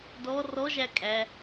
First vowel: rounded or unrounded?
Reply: rounded